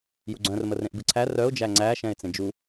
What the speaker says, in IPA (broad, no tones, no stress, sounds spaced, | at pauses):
j u ɡ͡ǀ œ̃ r m ə r ẽ ʔ b ɨ ǀʰ æ r œ ʊ̯ d͡ʒ æ ŋ͡ǀ æ ʃ ɛ̃ ɪ̯ t͡s ẽ d͡ʒ u